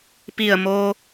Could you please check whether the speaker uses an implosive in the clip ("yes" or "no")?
no